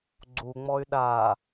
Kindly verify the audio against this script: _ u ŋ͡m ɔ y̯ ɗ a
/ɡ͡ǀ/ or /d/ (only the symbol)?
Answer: ɡ͡ǀ